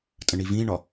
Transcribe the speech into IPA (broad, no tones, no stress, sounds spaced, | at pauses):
tʼ ə̃ ɳ i v ĩ ɳ ɒ